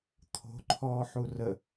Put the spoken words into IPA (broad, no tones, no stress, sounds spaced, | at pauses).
t̪ʰ o̤ ǃʰ ɔː ħ u r ə